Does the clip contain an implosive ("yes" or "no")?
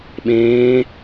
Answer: yes